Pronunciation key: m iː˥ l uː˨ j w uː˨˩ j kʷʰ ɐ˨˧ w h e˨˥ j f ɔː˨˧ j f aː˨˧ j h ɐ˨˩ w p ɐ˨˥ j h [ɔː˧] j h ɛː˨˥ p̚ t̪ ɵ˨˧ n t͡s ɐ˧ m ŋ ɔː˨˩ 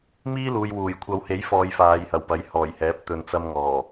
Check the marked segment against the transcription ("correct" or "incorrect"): incorrect